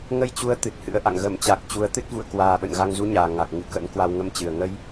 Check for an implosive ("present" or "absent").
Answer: present